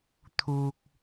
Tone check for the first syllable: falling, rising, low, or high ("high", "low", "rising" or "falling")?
low